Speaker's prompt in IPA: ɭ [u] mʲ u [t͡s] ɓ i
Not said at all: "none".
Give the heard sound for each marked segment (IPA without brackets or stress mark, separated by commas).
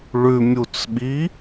ʉ, t͡s